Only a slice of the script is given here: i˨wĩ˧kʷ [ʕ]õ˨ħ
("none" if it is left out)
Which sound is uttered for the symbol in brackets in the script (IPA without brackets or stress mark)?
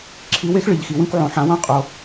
ʕ